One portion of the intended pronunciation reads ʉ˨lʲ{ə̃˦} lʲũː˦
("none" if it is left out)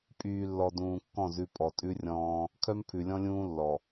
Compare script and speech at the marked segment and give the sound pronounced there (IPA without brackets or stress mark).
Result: ɔ̃˦